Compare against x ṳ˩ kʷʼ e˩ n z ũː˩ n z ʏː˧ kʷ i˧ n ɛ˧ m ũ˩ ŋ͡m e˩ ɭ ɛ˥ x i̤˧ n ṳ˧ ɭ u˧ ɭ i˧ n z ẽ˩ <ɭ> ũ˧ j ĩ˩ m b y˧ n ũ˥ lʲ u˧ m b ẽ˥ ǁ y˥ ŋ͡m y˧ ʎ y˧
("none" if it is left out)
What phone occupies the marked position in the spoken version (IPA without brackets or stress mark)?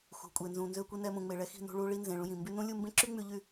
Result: ɭ